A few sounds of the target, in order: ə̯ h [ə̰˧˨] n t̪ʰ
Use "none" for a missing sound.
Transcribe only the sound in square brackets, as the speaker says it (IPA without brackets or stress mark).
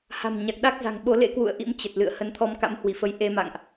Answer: ə˨˦